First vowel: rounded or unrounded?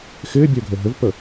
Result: unrounded